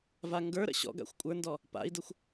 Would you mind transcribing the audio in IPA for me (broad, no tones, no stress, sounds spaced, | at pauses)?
v a ŋ ɡ ə˞ ɾ ə̰ ɕ ɔ̰ ɡ a̰ xʷ kʷʼ ə˞ n d ɔ | p a̰ i̯ d ə xʷ